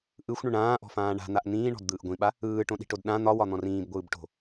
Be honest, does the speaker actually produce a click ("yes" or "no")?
no